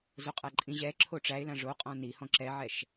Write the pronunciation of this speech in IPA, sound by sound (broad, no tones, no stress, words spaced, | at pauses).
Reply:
zoqʼaǃʼĩ ʑɛ ǁʰoʈ͡ʂæɪ̯lã ʐoqʼɔ̃ nihɔ̃ ǁɛʕɛʃ